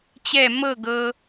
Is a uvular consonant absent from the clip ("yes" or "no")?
yes